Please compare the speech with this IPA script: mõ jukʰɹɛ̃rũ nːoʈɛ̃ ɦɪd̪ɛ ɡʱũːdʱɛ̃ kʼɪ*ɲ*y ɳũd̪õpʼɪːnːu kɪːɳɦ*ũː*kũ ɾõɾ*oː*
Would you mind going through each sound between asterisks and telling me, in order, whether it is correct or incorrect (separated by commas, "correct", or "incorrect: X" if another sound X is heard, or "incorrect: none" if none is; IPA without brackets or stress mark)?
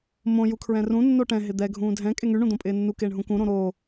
incorrect: ŋ, incorrect: ũ, correct